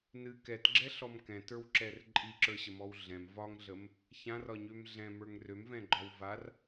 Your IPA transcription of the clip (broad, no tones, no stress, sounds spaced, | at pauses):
n ɨ k ɛ t ɡ͡ǁ ɛ ɬ ɔ m k ɛ̃ t ə˞ w ǁ ɛ r ǃʼ i ǁ ə˞ ɕ ə m ɔ w ɮ ɛ̃ m v ɒ ŋ ɮ ə m | ç ã r ɒ ɲ ø m ɮ ɛ̃ m ə˞ ŋ r ø m v ɛ̃ ɡ͡ǃ ɒ w v a r